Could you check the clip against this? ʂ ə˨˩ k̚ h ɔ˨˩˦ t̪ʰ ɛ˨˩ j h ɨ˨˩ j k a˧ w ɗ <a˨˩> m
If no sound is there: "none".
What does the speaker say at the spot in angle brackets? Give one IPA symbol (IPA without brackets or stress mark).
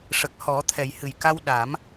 a˨˩˦